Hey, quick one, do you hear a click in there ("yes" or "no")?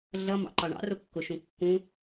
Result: yes